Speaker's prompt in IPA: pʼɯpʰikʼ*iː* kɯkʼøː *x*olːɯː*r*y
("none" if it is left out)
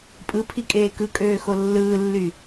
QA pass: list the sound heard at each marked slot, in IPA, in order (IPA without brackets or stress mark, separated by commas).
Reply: eː, x, lː